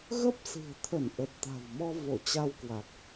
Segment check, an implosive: absent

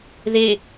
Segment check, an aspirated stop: absent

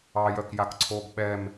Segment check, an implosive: present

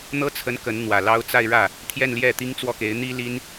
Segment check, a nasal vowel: absent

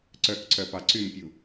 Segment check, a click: present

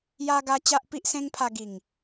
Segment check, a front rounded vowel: absent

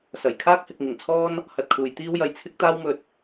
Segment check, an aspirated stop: present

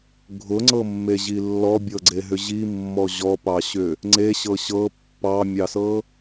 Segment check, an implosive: absent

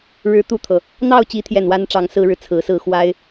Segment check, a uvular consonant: absent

